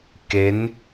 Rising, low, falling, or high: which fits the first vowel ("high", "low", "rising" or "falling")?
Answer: rising